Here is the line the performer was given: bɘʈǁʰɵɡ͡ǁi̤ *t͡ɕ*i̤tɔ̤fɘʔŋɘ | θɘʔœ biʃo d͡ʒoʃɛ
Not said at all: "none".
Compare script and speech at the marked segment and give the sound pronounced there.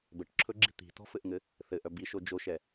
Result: t̪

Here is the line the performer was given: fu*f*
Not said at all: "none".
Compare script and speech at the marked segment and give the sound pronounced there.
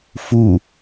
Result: none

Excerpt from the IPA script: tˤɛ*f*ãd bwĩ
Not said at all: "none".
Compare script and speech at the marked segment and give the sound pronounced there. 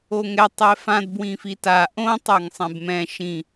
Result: f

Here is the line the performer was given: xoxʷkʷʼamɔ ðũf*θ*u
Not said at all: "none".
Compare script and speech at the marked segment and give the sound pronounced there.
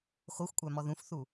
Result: θ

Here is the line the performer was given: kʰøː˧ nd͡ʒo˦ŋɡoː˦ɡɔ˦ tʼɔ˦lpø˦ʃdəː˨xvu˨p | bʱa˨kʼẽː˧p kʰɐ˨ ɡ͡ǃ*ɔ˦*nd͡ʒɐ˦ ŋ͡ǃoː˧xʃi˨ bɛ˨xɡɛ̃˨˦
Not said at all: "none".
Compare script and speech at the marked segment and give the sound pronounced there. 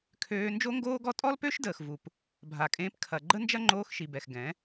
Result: ə˦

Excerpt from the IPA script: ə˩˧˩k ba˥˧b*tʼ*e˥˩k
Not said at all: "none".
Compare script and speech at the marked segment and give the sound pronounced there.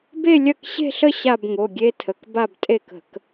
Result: tʼ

